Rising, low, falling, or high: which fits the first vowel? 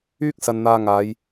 high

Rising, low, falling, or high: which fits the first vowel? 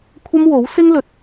high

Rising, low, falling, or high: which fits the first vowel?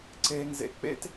low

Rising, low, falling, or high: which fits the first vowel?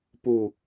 low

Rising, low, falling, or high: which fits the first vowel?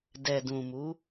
low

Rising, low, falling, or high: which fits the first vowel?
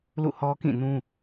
falling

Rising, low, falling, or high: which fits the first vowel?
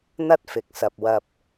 high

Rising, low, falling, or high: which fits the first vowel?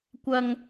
high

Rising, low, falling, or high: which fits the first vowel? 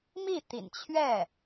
falling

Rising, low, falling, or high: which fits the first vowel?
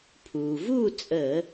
low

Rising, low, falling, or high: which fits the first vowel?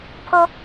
high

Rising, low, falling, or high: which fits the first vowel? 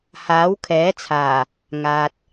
rising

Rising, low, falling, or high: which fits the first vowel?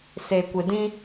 low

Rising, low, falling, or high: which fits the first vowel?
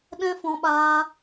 high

